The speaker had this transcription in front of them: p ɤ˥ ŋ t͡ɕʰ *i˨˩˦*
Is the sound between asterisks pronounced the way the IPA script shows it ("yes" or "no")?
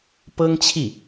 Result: no